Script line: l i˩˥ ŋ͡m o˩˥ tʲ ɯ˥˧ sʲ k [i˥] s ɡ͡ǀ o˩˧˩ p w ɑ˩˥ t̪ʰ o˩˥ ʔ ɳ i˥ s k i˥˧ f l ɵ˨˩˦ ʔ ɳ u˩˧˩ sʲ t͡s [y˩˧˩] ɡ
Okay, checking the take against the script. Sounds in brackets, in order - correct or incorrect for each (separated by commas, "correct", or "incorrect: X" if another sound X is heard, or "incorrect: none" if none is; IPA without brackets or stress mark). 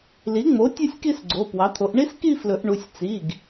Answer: incorrect: i˥˧, incorrect: i˩˧˩